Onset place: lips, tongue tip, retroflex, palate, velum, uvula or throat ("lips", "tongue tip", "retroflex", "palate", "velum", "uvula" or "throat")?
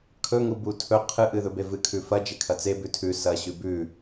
velum